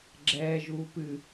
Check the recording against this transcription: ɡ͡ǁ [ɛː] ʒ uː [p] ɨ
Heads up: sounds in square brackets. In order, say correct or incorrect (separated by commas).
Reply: correct, correct